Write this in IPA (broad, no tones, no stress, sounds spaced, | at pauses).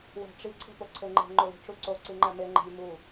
w æ̤ ʈ͡ʂ i ǀʰ e̤ p o ǀʰ e ŋ͡ǃ e̤ ŋ͡ǃ o l i̤ ʈ͡ʂ u ǀ o ǀ i ŋ͡ǃ æ m e ŋ͡ǃ e̤ lʲ m u